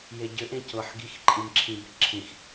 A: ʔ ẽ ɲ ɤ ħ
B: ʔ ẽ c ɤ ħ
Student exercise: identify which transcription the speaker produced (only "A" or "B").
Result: B